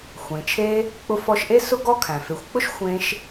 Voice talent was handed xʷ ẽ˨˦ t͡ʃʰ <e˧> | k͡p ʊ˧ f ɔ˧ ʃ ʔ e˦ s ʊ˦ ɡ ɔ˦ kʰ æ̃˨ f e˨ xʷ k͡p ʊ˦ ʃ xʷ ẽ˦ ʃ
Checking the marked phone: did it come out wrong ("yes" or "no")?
no